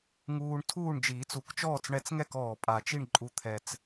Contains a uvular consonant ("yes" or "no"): no